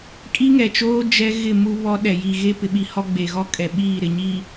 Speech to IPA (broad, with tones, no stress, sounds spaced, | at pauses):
kʼ i˦ ŋ ɛ˨ t͡ʃ oː˦ d͡ʒ ɛ˦ ɣ ɪ˦˨ m u˦ β ɔ˦ ɗ ɛ˨ j i˨ ɣ e˦ p ɪ˨ ɓ i˨ h ɔ˦ ɡ͡b e˨ ɣ ɔ˦ kʼ ɛ˨ ɓ iː˦˨ ɾ ɪ˨ ɲ i˨